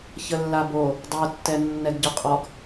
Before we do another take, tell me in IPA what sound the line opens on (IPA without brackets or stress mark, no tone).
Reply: ç